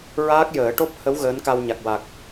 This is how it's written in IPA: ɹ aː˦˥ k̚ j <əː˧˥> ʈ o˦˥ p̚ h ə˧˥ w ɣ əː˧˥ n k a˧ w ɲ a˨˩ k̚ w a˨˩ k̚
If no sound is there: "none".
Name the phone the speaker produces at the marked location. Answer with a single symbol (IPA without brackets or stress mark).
əː˨˩˦